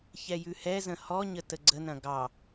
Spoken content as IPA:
ç ɛ j ʉ h ɛ z ə̃ h ɔ ɲ ə t ə ɡ͡ǀ ə n ɐ̃ ɡ ɑ

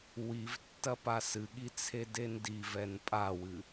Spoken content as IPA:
w i v tː ɐ p a s ɨ ɠ i t͡sʰ e d e n d i v ɛ n pʼ a w ɨ

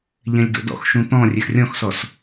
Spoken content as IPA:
ʎ ɛ̃ lʲ d o̰ d ɔ̰ x ʃ ũ t̪ ɔ̃ rʲ ɛ x rʲ ɔ̃ x s ɔ s

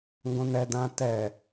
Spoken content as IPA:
ŋ ɡ õ n ɛ d ã t ɛ

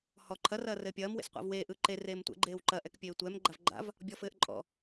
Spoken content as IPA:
h ɔ ǃʰ ɐ r ɐː r ɘː pʲ ɐː m w ḛ s qʷ a̰ v w eː ʔ ɯ ǃ e r eː m tʷ ɛ̰ ɡ͡ǃ eː w ǃ ɐ ʔ ɛ k pʲ eː tʷ ɛ m ɡ͡ǃ a v ɡ͡ǃ a̰ v | bʲ ɔ f ɘː ʔ ǃʼ ɔ̰

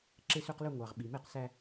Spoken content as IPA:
ǁ e˦ s ø˦ q l ø˦ ŋʷ ɑ˨ ʁ ɓ i˨ m e˦ q s æ˦

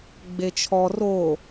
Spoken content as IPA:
ɡ͡b e t͡ʃʰ ɔ r o

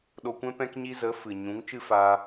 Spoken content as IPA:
ɗ o˧ kʷ ɛ̃˦ p ɛ̃˦ k ɲ i˦ z ə˨˦ f ɨ˨ ɲ ũ˨˦ ŋ t͡ʃ ɨ˦ f aː˧

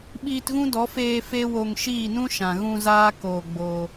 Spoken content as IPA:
ɓ iː˧ t ɣ ũ˦ d ɔ˨˦ f eː˧ f e˦ w o˧ ŋ ʃ iː˦˨ n ũ˦ ʃ ã˨ ɣ ũ˧ z aː˦ k oː˧ ɡ͡b oː˧

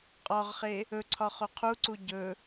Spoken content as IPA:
qʼ ɒ ʁ χ e | ɵ ǀʰ ɒ χ o qʰ u ǀ u ɟ ɵ

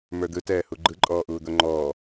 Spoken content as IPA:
m ə˞ d̪ ɯ t ɛː h u ɡ͡ǃ ɯ ǃʼ ɔː ʔ uː d̪ o ŋ͡ǃ ɔː

